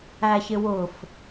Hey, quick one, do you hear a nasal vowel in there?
no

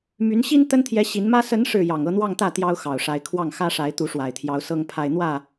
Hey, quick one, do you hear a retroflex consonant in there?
yes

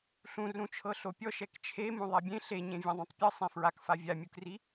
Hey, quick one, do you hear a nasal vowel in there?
yes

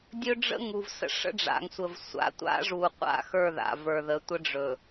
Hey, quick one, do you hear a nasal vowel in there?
no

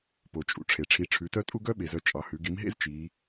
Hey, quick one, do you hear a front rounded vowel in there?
yes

